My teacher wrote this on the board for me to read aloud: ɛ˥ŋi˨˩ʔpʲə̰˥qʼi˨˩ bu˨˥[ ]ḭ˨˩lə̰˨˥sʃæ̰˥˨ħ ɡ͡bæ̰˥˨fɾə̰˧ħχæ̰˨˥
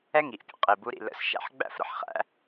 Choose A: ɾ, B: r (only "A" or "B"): A